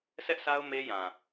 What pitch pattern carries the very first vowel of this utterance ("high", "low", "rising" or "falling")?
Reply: high